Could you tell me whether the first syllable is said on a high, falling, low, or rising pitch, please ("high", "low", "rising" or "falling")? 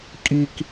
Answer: high